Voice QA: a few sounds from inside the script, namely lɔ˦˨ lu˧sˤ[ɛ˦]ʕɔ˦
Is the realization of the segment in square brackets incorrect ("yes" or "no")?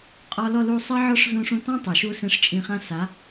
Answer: no